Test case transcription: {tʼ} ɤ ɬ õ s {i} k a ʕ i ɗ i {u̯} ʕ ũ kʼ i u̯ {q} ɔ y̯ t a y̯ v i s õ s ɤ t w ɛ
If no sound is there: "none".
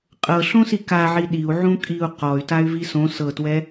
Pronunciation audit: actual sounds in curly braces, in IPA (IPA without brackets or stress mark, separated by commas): qʼ, i, u̯, q